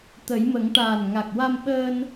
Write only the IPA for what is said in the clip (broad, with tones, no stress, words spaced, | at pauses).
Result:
t̪ə˨˩˦jmə˨˩˦ŋ ʈaː˨˩nŋa˨˩k̚wa˧mɓəː˧n